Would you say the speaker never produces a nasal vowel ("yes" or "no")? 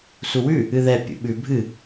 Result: yes